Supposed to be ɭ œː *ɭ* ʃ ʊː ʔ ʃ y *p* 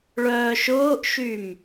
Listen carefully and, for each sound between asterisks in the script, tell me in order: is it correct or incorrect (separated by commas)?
incorrect, incorrect